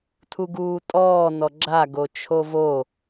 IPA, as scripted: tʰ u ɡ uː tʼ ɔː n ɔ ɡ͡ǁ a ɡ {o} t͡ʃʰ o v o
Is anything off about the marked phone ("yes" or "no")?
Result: no